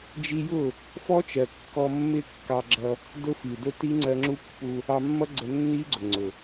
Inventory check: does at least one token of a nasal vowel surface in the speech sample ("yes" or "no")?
no